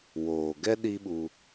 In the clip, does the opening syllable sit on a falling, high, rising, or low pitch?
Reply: low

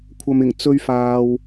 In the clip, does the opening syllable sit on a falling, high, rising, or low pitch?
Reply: low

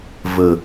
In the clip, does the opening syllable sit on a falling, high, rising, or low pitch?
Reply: low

